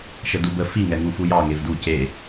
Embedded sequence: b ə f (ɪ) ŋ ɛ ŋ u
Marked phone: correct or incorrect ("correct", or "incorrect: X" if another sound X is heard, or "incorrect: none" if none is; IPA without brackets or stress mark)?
incorrect: i